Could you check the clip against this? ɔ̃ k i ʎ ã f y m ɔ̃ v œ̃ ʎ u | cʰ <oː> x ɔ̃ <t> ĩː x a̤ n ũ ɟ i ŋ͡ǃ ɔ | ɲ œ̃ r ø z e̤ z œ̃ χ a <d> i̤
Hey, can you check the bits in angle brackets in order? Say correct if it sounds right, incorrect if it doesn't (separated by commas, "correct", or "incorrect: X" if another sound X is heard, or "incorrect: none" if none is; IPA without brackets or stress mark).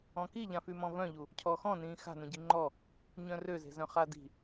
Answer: incorrect: ɔː, incorrect: n, correct